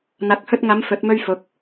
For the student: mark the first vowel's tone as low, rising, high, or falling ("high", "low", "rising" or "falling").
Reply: rising